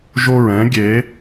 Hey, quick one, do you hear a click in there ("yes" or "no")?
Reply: no